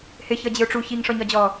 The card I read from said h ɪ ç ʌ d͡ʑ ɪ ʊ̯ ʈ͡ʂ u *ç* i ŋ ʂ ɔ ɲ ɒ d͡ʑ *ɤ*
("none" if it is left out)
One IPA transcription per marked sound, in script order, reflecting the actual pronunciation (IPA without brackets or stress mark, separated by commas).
ç, ɔ